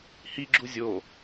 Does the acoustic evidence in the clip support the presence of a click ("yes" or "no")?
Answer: yes